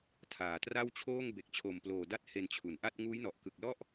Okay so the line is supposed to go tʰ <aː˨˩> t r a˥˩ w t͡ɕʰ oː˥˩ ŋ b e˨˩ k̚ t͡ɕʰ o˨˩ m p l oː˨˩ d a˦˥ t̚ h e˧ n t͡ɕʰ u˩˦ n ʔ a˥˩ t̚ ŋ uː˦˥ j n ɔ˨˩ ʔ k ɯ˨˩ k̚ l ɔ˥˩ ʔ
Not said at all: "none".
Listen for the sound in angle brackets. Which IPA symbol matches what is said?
aː˨˩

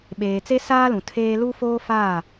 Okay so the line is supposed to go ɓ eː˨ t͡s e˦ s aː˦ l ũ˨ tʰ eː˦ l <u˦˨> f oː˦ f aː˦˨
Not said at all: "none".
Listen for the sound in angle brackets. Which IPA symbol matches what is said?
u˦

